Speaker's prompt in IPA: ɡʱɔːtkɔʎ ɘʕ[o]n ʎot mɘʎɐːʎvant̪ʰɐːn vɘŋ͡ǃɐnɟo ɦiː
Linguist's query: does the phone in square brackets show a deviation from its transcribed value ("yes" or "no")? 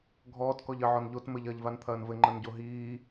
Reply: yes